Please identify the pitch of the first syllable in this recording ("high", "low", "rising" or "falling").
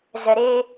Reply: low